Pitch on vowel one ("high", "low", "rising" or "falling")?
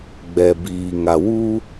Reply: low